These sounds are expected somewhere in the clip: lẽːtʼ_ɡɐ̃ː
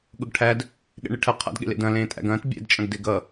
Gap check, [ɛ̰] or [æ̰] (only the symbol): æ̰